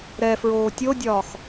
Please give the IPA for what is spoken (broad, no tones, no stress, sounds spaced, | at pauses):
ɾ ɛ f ɹ oː tʲ o dʲ ɒː x